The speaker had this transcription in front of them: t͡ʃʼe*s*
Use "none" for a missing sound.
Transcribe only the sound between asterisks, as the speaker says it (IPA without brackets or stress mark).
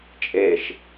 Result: ʃ